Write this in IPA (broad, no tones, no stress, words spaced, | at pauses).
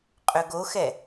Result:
qʼøɡoxɛ